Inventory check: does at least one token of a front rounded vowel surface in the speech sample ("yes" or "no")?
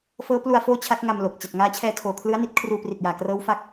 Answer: no